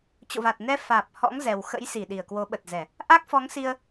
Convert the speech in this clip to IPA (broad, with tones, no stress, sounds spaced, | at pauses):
t͡ɕ o̰˧˨ v a˨˩ t̚ n ɛ˧ f aː˨˩ p̚ h ɔ̰˧˥ ŋ z ɛ˨˩ w x ə̰˧˥ j s i˧˩ ɗ i˧˩ ə̯ k w o˨˦ ɓ ə˨˩ t̚ z ɛ˧˩˨ | ʔ a˦˥ k̚ f ɔ˨˦ ŋ s i˧ ə̯